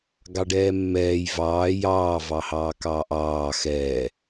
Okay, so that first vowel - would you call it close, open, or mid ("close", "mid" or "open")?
open